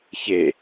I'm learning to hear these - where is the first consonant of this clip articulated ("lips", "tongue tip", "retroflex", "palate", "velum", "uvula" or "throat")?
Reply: palate